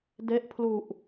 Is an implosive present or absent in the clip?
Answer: absent